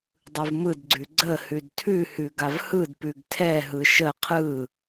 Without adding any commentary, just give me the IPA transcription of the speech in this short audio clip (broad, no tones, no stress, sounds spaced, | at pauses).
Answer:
dˤ ɯ v m ɯ d ɡ͡ǀ ʉ ɡ͡ǀ ə h ʉ d tʰ ʉ h ʉ ɡ a v h ɯ d p ʉ ɡ tʰ ɛ ɦ ɯ ʃ ə qʰ ɯ